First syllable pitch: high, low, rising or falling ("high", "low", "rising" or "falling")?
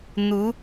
rising